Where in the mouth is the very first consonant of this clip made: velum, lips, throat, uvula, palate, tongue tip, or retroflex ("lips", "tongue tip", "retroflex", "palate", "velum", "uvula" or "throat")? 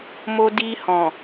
lips